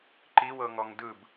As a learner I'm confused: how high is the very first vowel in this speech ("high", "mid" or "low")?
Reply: high